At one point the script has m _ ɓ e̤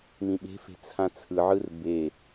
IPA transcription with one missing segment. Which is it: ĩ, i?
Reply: ĩ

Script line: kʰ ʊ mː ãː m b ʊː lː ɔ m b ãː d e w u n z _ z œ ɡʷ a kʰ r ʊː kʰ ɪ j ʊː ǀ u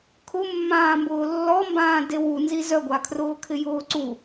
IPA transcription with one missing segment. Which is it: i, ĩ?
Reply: i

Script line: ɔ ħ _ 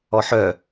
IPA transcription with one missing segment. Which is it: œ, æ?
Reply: œ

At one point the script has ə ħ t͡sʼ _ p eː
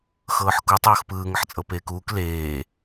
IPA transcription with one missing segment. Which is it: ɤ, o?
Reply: ɤ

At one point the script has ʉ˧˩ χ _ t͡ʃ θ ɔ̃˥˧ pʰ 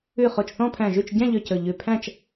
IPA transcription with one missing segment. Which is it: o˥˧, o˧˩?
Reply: o˧˩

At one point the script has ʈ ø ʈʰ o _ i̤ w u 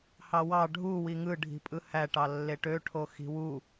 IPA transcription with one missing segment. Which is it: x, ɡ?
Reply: x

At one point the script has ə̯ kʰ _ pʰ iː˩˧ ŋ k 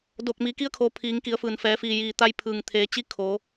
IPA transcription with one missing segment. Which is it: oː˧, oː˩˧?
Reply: oː˩˧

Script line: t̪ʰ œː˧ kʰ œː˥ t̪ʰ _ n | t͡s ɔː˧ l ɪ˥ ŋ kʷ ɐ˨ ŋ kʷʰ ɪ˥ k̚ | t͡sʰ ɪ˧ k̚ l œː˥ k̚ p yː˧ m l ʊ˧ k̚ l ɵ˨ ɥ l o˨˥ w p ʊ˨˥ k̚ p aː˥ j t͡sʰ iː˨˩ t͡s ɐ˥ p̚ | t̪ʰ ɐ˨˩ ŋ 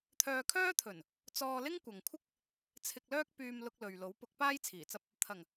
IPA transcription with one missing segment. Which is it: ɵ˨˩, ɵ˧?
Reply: ɵ˨˩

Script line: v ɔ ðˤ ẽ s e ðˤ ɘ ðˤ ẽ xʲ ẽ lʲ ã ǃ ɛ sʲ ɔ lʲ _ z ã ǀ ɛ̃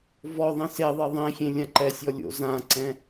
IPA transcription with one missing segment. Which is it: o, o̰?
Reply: o̰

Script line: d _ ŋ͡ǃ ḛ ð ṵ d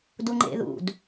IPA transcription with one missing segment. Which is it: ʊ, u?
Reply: u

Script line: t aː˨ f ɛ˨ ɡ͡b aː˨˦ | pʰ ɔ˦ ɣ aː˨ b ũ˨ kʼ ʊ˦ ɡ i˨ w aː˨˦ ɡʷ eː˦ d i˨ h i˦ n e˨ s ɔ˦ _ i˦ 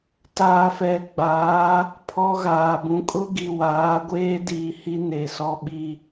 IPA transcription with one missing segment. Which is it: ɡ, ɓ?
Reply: ɓ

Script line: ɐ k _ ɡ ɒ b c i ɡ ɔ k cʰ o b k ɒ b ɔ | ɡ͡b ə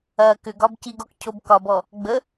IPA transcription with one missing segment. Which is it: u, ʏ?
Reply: ʏ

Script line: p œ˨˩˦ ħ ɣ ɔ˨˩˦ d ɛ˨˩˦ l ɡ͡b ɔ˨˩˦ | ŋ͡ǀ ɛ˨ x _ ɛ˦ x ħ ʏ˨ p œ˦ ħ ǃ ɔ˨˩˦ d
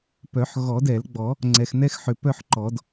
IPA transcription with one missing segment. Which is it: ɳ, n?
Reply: n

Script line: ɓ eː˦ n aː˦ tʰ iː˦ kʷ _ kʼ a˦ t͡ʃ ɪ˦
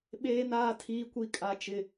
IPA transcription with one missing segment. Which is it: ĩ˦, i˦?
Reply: i˦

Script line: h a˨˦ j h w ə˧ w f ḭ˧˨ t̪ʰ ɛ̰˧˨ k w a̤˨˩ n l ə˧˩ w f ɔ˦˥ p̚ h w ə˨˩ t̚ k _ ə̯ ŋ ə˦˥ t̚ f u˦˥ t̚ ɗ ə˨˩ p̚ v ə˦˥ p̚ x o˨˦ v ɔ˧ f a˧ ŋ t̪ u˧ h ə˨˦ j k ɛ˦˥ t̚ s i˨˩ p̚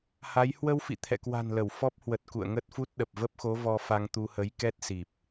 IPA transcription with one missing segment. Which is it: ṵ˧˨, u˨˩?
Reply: ṵ˧˨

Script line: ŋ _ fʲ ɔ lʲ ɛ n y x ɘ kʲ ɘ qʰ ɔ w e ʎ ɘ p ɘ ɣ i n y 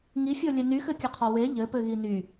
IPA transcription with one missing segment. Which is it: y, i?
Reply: i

